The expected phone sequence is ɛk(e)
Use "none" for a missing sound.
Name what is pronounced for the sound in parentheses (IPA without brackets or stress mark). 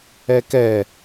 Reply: ɛ